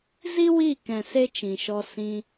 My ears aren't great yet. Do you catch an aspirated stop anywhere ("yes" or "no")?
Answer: no